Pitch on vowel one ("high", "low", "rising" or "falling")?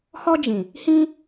high